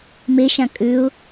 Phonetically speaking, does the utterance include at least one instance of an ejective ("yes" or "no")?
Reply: yes